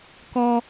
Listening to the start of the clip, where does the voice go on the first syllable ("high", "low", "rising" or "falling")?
high